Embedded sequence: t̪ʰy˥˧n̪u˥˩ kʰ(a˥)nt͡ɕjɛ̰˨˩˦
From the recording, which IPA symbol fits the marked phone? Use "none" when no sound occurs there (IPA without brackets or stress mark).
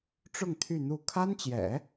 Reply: a˥